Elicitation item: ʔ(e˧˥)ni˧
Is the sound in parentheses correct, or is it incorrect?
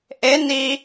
correct